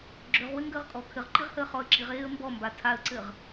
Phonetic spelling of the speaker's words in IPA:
ɡ͡ǁøʁwɘ ŋɡəːʁkʼɔ kʰɘʁǃiʁhəː χɔə̯ǁiʁeːə̯ mbɔmba tʰaə̯ǀɘʁ

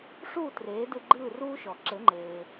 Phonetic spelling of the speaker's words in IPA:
ʂuː˥˩ treː˩˥dɯ˧ ɡ͡ǃɯː˥˩ruː˥ʃɔ˩ ǁɘ˩˥ŋ͡ǃeː˩

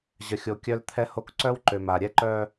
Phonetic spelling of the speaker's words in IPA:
ʑə˨xʲo˨ kʲœ˦lt̪ʰɛ˦ho˦k ǀœ˦wǃø˨ma˨ ɾʲɛ˦ǃœ˦

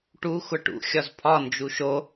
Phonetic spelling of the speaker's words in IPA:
ʈu xʷaʈṵ xʲɒzpʰɒ nd͡ʒuʃo

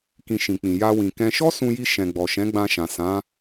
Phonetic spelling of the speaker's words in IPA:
kĩ˧ʃĩ˨k͡pĩ˨ ja˧wĩ˨kɛ̃˧ ʃɔ˦sũ˧ji˧ ʃɛ̃˨ɡ͡bɔ˨ʃɛ̃˨˦ɡ͡bã˧ ʃã˨sã˨˦

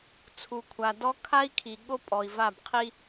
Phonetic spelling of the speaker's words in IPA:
t͡sʰu˨kʷʰa˨ dɔ˦kʰa˦i̯kʰi˨ ɠo˦pʼɔ˨i̯va˦˨b qʰi˦

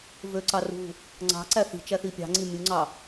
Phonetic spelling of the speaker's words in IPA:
vøǀɑ rṳ | ŋ͡ǀɑ̤ǀæ θi̤t͡ʃæ θipʲɑ̤ŋ͡ǀi mʲuŋ͡ǀɑ

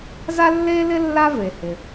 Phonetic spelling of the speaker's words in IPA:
za˥lːeː˥lɪ˥ lːa˥ve˩hɪ˩

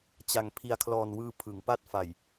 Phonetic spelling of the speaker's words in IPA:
t͡ɕa˨˩ŋ pʰi˨˩a̯kʰlɔː˨˩nwɯː˧ pʰɯ˩˦ŋpa˥˩t̚ fa˨˩j

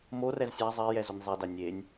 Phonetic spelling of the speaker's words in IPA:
morɛz sʲa zˤejɛ zonʲzˤɛda nʲenʲ

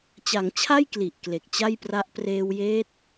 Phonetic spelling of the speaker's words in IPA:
t͡ɕa˩˦ŋt͡ɕʰa˥˩j kli˨˩ʔkle˨˩k̚t͡ɕa˥˩jpra˦˥ʔ preː˧wjeː˦˥t̚

